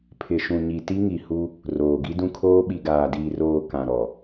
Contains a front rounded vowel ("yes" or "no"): no